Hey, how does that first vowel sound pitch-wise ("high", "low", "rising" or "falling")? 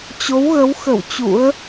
rising